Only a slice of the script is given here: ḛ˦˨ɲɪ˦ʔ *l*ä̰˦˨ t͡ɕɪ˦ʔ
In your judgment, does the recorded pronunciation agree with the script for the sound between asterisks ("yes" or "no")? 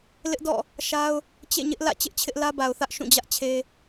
yes